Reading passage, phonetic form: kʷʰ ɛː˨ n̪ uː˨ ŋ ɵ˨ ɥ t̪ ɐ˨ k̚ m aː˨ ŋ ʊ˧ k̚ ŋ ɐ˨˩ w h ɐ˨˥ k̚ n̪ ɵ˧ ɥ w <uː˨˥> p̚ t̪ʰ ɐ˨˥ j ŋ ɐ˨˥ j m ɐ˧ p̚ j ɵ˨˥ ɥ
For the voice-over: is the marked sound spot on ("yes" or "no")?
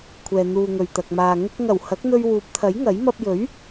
yes